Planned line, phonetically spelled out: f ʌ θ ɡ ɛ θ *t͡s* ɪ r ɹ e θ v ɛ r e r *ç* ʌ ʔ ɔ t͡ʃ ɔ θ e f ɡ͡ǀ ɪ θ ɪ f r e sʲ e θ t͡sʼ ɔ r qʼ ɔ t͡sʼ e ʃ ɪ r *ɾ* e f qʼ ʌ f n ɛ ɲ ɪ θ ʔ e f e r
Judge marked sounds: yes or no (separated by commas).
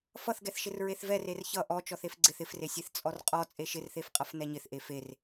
no, yes, no